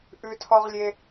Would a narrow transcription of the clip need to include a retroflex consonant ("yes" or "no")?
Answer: no